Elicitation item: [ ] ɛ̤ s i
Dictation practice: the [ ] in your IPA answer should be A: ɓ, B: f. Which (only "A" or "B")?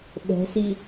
A